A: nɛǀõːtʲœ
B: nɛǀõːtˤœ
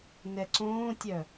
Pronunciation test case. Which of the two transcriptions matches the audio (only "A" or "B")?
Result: A